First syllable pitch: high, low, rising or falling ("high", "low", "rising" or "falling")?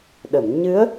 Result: low